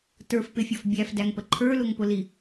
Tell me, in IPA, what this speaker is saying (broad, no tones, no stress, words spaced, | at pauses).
tə˞fpɪfʲɔf bʲæfdæŋpə ǃʰə˞lʊŋpʊli